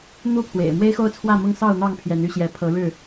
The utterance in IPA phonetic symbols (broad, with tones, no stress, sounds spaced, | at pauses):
n̪ u˦ pʰ w ḛ˨˩ ɪ̯ m w e˦ ɪ̯ x o˥˨ ʊ̯ t͡sʰ w ä˥˨ m ʊ˦ ŋ s ɑ˥˨ ʊ̯ n̪ ɑ˥˨ ŋ pʰ j ɛ˨˦ n y˨˦ ɕ j ɛ˨˦ pʰ ɤ˨˦ ɻ ɻ̩˥˨